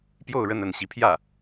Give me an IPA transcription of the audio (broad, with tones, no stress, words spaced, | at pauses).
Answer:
pjo˥˧ʊ̯ɻə˥˧nə˥˩n ɕi˧˥pʰjä˥˩